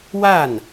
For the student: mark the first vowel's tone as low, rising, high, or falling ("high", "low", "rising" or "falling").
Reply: falling